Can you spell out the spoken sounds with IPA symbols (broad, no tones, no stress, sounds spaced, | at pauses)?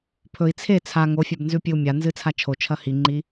pʰ ɵ i̯ t͡sʰ e t͡sʰ a ŋ o fʲ a b n z ʉ pʲ ɨ u̯ mʲ a n z ɨ t͡sʰ a t͡ʃʰ o t͡ʃʰ ɐ h i ŋ͡ǃ i